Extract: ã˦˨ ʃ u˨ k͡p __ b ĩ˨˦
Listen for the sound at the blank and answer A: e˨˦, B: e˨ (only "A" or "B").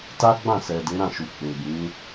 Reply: B